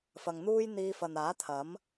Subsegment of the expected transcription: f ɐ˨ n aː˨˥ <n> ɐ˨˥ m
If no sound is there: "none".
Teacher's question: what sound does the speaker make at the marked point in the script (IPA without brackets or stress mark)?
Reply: t̪ʰ